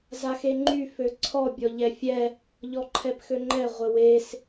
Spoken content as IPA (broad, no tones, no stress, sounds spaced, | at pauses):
z a x e ŋ͡ǃ y f ø ǀʰ ɔ bʲ ɔ ʎ ɛ fʲ ɛ | ʎ ɔ ǃʰ ɛ p x ø ŋ͡ǃ ɛ ʁʷ ə w e s